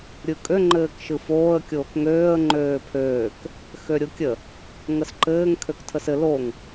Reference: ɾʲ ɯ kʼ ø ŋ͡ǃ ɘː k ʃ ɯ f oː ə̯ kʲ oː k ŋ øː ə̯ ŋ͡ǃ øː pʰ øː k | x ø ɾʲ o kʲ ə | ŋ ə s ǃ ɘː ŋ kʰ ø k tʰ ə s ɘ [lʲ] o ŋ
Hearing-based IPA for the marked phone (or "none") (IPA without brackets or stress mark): l